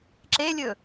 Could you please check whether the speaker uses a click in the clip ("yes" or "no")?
yes